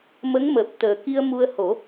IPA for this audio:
mə˧˥ŋməː˨˩p̚ t̪əː˨˩ki˧ə̯ mu˧ə̯ho˨˩˦

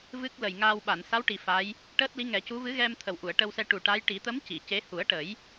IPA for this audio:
vɨ˦˥k̚ lə˨˩jŋaː˧wɓa˨˩˨n sa˧˥wʈi˨˩ fa˧˥j | ʈəː˦˥t̚li˧˥ ŋɛ˨˩˦cu˧˥ vɨ˧˥ɣɛ˧m t̪ʰə˨˩wʔu˨˩˨ə̯ʈə˧wsɛ˧ ʈu˨˩ʈa˧˥j ʈi˨˩˦t̪ə˧˥m ci˨˩˨ce˧˥ hu˨˩˦ə̯ʈə˨˩˦j

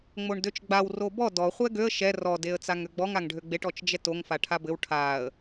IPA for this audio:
ŋ͡moɳdøt͡ʃɡ͡baw robɔ dɔ χʷɛɡøə̯ ʃɛ rɔ deə̯t͡saŋøɡ͡bɔŋ aŋɖʱøɡ͡beʈ ɔt͡ʃd͡ʒɛtoŋ faʈʰabɘw ʈʰaə̯

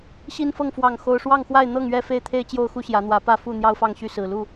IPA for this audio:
ɕi˦nfɤ˥˨ŋ fwɑ˥˨ŋxo˦ʊ̯ ʂwɑ˥˨ŋxwa˥˨ɪ̯ n̪ɤ˥˨ŋɥɛ˥˨ fe˥˨ɪ̯t̪ʰe˦ɪ̯ t͡ɕjo˦ʊ̯xu˦ɕjä˨˦n̪wä˨˦ pä˥˨fu˥˨ n̪jɑ˦ʊ̯fɑ˥˨ŋɕy˥˨ sɹ̩˨˩lu˥˨

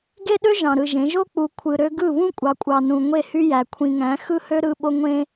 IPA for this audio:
ɡe˦ɗø˦ ʒɑ̃˨ɾɯ˨ʒẽ˨˦ ʒo˦k͡pu˨ kʷʰɯ˨ɾø˦ ɡɯ˦˨βũ˦kʷʼɑ˨kʷʼɑ˨ nũ˨ŋʷe˦˨hy˦jæ˨ kʷʰĩ˨ŋæ̃˨˦ xɯ˦hø˦ ɾɯ˦ɓo˦ ŋʷẽ˦

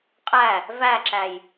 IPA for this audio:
qʼæ | væǁæj

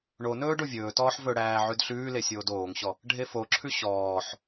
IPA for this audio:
ɳo nɵːɖovʲɵːtɔːħ vɵɽæː ʕʉdɬʉːle sʲoːdoːŋɕɔ | ɖʱefoǁʰʉ ɕɔːħ

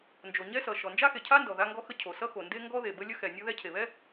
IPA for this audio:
nd͡ʒo˩ɲɛ˥sʌ˩ ʃɔ˩nd͡ʒa˥xe˩cʰa˥ ndɔ˩ða˥ŋɡɔ˥xə˥ cʰo˩sʌ˥xo˩nde˥ ŋɡɔ˥ðe˩ bə˥lʲə˥ xɛ˩nʲʌ˥ðɛ˥ cʰe˩βɛ˥

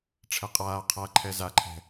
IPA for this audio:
ʈ͡ʂʰɛqʼaː qʰaǃʰɛ zaǃʰɛ̤

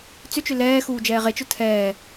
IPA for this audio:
t͡sʏt͡ʃʏ lɛːxuː d͡ʒɛːʁet͡ʃʊ tʰɛː

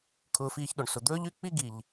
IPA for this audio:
kʰʊː˧fiː˧çɗɵ˨ɳsʊ˨ d̪ɵː˦ʎy˦ k͡pi˦ɡi˨ʎ

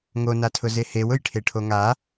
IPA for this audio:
ŋonatʰʊ zehew ʊjʈʰeʈʰoŋa

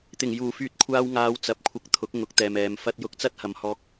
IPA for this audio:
t̪ɪ˨˩ŋjuː˨˩ fyː˧t̚kʷʰaː˧wŋaː˨˧w t͡sɐ˨˥p̚kʷʰɐ˧k̚t̪ʰʊ˨˥k̚ ŋʊ˨˥k̚t̪ɛː˨mɛː˨m fɐ˧t̚jʊ˧k̚t͡sɐ˥t̚ hɐ˨mhɔː˧k̚

